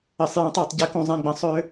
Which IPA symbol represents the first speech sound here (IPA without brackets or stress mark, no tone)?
ɘ